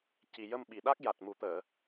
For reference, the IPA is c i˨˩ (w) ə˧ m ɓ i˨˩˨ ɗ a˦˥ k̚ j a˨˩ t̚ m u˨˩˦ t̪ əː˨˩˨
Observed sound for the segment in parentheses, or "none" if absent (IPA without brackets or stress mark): j